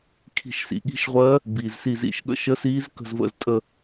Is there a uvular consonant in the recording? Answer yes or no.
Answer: yes